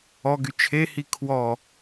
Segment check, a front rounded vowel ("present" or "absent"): present